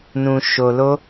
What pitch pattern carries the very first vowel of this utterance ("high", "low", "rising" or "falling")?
low